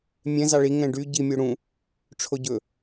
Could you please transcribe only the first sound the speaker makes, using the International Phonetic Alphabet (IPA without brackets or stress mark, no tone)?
mʲ